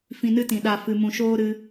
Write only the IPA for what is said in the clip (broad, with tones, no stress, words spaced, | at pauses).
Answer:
fĩ˧nɨ˦tĩ˨ ɗa˨ fɨ˨mũ˨ ʃoː˦ɾɨ˧